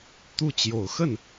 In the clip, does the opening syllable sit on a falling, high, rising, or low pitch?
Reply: falling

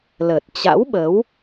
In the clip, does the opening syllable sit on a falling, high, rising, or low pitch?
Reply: low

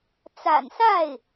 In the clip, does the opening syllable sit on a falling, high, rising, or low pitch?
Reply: low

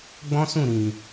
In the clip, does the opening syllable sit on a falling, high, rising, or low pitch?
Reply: high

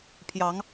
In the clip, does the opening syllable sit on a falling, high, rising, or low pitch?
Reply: rising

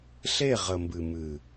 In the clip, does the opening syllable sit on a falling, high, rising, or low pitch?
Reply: falling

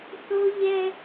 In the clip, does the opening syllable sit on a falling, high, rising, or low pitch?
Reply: high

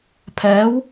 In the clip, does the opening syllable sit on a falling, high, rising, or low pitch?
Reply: rising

